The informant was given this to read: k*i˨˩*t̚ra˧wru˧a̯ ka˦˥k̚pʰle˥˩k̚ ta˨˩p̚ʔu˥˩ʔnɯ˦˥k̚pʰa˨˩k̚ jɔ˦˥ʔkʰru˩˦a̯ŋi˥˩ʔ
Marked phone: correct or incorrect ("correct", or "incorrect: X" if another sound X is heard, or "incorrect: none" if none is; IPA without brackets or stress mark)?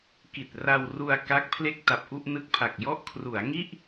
correct